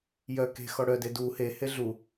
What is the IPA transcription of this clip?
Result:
jœ ke̤ xɔɽœ dedu he heɮu

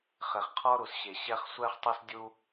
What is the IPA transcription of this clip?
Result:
χe˨χqʰɔ˦ɾu˨s ɕe˨ɕɛ˦χ sʷɛ˦χtˤɛ˦s dʲu˦

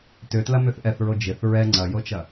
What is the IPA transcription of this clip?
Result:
tʏtlɐmʏθ ʔɛθɹo d͡ʒɪθ ɹɛ ŋ͡ǀɐjot͡ʃɐ

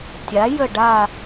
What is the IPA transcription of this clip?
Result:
tʲa˩˥jə˦˨ɖa˦˨

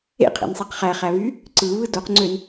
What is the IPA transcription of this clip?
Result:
ḛqʰḛnsˤiq χæχæβy | ǀɯβɯ doqŋ͡ǀøn

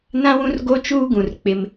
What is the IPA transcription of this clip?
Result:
nã˦wũ˦r ɡo˦t͡ʃuː˦ɡũ˨r k͡pɪ˦m

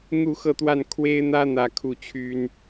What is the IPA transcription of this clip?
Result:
n̪u˥˧xɤ˥˧t̪wa˥˩n kʰwe˥ɪ̯n̪ä˥ n̪ä˥˧kʰu˥˩t͡ɕʰy˥n

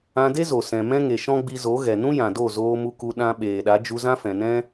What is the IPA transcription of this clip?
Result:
ã˧de˦zo˨ sɛ̃˨mɛ̃˦ŋe˨ ʃɔ̃˦ɡ͡bi˧zo˨˦ɣɛ˨ nũ˦jã˨do˦˨ zoː˧mu˧ku˧ ɗã˦ ɓeː˨ɗa˨˦ d͡ʒu˧zã˦fɛ̃˨nɛ̃˦

